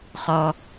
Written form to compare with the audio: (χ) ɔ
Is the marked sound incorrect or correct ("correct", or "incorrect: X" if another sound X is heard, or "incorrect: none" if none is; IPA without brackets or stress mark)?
correct